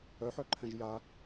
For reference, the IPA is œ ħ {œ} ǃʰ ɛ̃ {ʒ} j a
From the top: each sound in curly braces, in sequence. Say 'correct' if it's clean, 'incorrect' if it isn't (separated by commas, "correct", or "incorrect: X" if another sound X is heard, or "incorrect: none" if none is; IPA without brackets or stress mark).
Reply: correct, correct